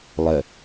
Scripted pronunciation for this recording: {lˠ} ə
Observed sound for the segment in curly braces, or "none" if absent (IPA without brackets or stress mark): lˠ